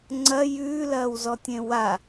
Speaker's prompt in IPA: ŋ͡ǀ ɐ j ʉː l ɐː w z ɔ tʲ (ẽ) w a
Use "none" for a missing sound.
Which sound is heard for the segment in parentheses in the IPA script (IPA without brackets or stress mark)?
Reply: ẽ